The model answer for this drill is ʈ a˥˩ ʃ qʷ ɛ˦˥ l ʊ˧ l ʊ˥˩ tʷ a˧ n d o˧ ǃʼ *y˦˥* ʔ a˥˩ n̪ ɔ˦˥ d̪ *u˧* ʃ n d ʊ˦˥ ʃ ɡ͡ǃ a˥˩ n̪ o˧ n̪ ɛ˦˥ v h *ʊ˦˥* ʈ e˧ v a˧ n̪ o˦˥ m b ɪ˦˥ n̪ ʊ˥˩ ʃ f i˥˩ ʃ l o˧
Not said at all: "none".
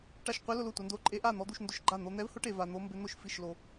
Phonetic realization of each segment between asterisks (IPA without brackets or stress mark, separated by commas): e˦˥, u˧, ʊ˦˥